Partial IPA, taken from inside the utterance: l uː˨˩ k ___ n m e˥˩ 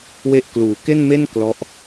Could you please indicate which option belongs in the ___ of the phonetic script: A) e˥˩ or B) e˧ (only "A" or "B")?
A